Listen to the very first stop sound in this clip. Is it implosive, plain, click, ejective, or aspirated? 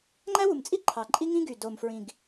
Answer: click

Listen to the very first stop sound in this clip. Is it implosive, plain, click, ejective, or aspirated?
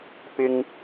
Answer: plain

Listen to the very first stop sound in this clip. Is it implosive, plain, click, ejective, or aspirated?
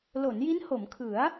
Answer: aspirated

